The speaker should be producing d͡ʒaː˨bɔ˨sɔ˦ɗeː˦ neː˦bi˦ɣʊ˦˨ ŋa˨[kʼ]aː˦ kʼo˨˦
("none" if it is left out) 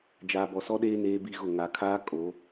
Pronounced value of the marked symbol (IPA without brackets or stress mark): kʰ